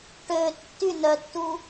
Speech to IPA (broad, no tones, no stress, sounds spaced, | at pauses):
ʈ ø tː y n œ tː u